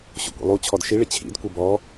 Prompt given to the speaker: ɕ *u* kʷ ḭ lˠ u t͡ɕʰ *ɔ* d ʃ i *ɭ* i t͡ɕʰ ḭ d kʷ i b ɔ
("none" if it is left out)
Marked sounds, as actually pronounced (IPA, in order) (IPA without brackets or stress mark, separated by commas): ṵ, ɔ, ɭ